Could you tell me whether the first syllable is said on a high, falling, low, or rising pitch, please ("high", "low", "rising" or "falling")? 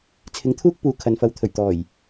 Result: rising